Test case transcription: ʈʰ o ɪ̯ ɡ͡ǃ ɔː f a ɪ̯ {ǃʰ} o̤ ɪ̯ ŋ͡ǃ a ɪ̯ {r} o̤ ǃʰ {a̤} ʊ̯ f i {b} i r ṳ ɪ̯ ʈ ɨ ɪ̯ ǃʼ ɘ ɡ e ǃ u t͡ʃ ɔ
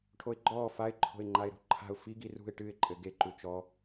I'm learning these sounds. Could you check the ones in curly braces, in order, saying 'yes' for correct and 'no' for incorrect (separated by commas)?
yes, no, yes, no